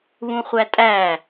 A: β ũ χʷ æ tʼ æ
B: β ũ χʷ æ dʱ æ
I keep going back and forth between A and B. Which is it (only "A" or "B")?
A